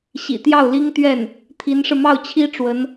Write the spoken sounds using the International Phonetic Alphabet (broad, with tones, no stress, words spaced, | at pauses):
ɕḭ˨˩t̪jɑ˥˩ʊ̯li˥ŋt̪ɥɛ˥˩n | t̪ʰi˧˥nʂɻ̩˧ mɑ˥˩ʊ̯t͡ɕʰi˥ ʈ͡ʂwə˧˥n